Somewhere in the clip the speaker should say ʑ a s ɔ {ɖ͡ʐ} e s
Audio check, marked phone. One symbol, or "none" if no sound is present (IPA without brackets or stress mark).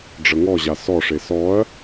ʂ